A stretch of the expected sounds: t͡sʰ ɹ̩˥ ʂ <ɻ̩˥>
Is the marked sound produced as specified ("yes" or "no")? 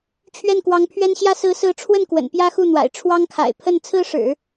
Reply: no